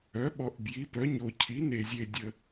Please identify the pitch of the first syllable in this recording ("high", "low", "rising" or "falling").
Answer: rising